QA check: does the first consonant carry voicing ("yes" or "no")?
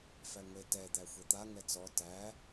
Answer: no